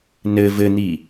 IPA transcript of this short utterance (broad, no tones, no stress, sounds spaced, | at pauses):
n ɘ v ɘ n̪ i